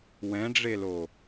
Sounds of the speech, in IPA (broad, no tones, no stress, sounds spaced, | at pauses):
w ɛ̃ ɖ͡ʐ e l o